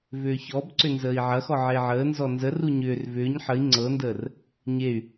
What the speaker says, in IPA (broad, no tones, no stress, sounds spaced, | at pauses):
v ʏː ç ɔ b ǀ ʏ n z əː i̯ ʕ ɐ x ɔ ʕ e ʕ əː n z ɔ n z ə r u ɲ ʏː r v ʏː ɲ ħ ə i̯ ŋ͡ǀ ɤ n d əː r | ɲ e y̯